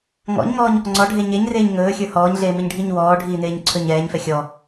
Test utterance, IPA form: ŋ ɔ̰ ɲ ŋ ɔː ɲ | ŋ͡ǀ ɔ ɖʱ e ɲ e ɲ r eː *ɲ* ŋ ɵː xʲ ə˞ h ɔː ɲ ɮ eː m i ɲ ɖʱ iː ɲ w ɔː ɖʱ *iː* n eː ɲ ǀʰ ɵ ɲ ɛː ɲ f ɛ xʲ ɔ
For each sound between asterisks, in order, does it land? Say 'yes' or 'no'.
yes, yes

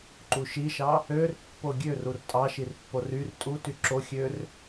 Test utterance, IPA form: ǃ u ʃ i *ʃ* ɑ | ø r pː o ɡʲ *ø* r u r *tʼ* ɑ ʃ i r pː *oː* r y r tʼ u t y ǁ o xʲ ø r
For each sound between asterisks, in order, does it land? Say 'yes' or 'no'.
yes, yes, yes, no

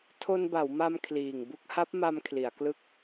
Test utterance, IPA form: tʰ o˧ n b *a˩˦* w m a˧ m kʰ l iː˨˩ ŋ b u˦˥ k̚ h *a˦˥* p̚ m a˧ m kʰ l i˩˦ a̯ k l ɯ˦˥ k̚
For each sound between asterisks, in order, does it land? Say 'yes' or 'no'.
yes, yes

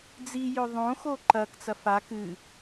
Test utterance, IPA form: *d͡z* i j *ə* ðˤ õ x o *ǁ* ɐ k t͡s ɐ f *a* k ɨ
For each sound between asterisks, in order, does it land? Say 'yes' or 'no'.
yes, no, no, yes

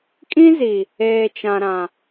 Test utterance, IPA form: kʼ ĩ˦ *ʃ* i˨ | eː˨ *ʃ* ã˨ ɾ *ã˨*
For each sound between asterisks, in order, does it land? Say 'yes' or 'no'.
no, no, yes

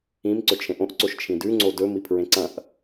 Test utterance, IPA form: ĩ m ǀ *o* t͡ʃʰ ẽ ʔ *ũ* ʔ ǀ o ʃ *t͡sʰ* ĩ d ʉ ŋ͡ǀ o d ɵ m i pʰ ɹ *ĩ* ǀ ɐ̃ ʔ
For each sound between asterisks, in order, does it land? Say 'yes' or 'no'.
no, no, no, no

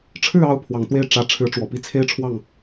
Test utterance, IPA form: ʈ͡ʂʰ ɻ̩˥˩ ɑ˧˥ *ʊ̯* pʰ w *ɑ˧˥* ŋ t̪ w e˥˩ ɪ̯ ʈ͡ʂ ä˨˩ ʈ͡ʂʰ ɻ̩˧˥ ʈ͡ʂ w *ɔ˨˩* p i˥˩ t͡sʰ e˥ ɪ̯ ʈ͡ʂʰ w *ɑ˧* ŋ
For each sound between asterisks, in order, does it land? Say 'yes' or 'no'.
yes, no, yes, no

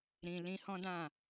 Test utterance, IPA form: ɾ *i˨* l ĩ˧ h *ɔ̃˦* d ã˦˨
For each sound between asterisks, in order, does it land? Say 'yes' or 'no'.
no, yes

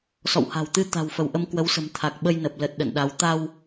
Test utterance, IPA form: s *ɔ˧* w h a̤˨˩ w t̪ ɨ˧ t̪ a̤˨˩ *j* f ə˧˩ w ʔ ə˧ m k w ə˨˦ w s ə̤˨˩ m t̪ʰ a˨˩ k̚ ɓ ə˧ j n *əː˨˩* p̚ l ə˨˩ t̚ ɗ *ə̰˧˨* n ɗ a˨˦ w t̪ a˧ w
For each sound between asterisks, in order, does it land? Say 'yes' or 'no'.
no, no, no, yes

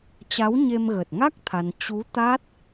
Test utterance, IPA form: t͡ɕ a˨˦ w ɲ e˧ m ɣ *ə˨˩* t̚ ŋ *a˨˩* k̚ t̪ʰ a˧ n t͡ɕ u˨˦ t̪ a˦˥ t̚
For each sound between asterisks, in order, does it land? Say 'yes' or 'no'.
yes, no

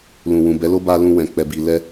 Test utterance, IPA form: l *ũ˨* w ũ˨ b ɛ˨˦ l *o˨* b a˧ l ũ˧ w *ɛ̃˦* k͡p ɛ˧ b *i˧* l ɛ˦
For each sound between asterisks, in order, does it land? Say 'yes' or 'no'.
yes, no, no, yes

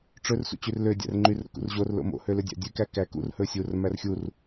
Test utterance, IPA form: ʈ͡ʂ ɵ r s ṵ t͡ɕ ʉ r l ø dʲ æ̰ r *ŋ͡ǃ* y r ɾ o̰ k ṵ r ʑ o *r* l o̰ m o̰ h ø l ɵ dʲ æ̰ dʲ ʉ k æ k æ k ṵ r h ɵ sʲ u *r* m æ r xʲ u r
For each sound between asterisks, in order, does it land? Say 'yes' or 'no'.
yes, yes, yes

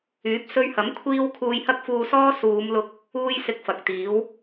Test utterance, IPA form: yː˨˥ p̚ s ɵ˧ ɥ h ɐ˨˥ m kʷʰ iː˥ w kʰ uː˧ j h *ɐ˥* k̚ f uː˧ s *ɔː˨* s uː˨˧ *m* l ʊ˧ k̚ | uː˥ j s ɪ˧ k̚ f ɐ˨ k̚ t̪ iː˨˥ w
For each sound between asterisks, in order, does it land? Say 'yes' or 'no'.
yes, no, yes

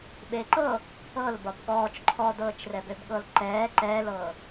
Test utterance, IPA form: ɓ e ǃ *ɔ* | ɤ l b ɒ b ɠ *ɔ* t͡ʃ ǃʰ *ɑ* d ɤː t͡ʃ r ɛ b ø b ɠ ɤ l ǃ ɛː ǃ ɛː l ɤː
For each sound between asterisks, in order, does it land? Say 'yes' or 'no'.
no, no, no

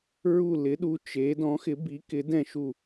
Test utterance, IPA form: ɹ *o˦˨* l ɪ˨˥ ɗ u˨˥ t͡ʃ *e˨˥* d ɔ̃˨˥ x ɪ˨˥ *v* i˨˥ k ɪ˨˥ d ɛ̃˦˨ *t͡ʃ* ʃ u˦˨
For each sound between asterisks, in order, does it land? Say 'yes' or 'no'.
no, yes, no, no

